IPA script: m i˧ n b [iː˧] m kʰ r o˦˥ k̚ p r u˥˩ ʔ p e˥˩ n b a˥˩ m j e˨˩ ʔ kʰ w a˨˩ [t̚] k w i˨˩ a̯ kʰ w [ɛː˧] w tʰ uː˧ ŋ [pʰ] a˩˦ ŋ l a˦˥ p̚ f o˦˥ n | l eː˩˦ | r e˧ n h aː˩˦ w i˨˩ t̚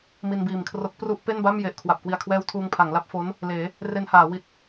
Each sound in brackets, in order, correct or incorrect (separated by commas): incorrect, incorrect, correct, correct